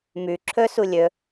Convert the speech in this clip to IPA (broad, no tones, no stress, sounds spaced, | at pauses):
m ʉ ǁʰ ɵ s u lʲ ɵ